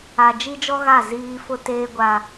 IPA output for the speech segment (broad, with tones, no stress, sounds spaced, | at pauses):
a˨ d͡ʒ i˦ d͡ʒ ɔ˦ ɣ a˦˨ z iː˦ f ʊ˦ t eː˦ ɡʷ a˦